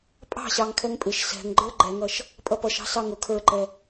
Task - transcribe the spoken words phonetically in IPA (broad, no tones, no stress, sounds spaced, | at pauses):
pʼ ɑ̤ ɕ ɑ ŋ kʰ ɛ ŋ pʼ ɪ ʃ s ɛ̤ ŋ ɡ͡ǃ ə˞ ɡ͡ǃ ɛ ŋ ʌ ʃ | pʼ ʌ p ʌ ʃ ɑ̤ s ɑ ŋ ʊ kʰ ə˞ ǃ ɛ